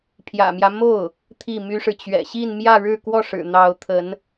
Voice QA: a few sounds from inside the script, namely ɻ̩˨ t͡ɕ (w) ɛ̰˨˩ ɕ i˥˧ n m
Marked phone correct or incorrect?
incorrect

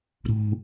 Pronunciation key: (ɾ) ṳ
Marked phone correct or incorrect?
correct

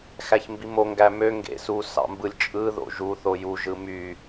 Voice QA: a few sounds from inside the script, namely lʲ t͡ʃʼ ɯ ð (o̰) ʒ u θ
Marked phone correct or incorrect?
correct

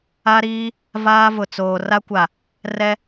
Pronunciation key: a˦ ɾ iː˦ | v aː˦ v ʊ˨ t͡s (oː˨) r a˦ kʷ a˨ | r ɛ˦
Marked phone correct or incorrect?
correct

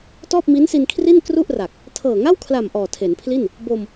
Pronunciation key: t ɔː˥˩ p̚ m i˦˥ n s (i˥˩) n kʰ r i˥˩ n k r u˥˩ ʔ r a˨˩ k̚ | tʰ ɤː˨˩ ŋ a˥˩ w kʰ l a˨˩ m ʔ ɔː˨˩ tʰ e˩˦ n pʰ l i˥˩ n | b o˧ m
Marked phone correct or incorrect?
incorrect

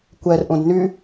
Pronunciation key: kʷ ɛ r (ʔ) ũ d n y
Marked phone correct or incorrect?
correct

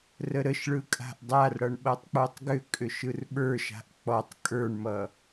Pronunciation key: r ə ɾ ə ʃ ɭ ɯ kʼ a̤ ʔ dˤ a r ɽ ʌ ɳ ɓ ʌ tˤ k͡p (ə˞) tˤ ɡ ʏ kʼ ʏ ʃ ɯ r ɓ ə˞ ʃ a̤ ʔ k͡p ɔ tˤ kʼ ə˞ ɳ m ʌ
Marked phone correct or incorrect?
correct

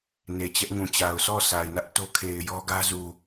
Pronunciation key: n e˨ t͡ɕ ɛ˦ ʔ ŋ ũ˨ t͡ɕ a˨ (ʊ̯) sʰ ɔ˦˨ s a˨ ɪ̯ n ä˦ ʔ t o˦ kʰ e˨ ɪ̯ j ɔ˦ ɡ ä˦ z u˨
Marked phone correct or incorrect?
correct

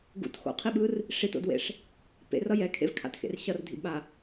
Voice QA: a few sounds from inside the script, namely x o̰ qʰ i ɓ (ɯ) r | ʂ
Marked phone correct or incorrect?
correct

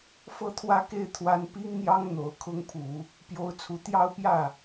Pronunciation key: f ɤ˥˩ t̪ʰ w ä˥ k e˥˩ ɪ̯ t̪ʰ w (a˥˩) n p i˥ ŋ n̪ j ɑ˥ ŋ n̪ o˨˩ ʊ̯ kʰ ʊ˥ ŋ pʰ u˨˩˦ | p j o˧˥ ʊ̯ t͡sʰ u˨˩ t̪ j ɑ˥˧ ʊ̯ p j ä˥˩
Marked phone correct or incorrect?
incorrect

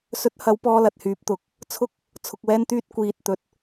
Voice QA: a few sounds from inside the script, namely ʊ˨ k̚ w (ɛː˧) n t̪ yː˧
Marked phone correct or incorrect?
correct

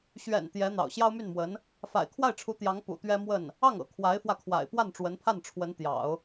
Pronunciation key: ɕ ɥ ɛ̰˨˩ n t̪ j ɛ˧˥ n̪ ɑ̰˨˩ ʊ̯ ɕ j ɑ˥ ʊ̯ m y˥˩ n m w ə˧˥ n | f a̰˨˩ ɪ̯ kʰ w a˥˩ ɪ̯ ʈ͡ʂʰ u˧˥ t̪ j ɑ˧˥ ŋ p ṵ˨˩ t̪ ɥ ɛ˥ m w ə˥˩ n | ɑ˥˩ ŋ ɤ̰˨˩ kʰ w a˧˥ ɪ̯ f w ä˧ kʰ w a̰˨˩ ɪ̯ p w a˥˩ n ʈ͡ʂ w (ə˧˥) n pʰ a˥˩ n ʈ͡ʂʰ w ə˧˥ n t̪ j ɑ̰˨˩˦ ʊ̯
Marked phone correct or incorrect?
correct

